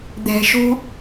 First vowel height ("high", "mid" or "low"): mid